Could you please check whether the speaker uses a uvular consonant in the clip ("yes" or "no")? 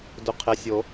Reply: yes